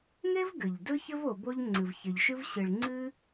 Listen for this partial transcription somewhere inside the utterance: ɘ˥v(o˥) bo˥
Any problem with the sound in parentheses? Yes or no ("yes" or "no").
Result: yes